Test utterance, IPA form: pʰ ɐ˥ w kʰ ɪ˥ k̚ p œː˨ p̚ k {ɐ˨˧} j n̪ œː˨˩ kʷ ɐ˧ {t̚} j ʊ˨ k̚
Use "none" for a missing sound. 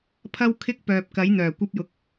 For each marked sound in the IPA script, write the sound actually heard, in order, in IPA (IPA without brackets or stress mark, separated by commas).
ɐ˨˥, p̚